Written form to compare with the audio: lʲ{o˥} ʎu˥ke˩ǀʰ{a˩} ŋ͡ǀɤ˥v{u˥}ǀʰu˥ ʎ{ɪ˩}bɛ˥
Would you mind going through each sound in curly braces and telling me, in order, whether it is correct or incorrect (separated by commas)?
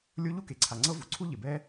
correct, correct, incorrect, correct